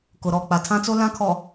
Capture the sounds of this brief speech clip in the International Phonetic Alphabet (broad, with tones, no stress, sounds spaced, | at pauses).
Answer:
k ʊ˨ ɾ ɔ˦˨ k͡p a˨ tʰ ã˦ t͡s o˦ l ã˦ kʰ ɔ˨